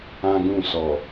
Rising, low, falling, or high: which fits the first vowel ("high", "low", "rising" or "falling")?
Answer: high